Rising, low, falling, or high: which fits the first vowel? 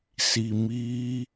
low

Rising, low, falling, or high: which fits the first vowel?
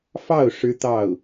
falling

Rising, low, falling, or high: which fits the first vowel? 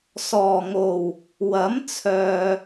low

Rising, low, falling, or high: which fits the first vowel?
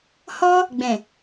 high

